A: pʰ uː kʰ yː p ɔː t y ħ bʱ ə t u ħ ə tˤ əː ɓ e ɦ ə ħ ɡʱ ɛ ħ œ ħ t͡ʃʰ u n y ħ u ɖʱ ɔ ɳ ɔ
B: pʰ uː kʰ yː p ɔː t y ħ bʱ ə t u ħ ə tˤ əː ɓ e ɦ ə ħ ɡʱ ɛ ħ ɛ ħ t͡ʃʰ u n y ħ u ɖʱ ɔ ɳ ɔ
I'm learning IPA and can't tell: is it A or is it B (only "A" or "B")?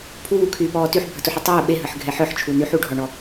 A